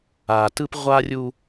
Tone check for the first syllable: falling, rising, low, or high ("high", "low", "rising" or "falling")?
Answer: low